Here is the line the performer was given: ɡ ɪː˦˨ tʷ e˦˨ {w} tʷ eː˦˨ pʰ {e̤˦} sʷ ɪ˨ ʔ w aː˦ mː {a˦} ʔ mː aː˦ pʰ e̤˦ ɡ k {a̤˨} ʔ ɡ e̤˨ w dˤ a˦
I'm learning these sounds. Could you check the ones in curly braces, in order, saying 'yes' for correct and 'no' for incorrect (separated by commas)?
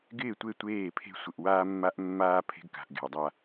no, yes, yes, yes